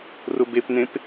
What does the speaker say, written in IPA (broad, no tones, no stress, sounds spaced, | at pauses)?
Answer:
r ʊ b e p n ẽ p